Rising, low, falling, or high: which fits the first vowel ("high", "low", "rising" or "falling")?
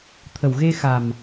low